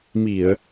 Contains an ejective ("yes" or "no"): no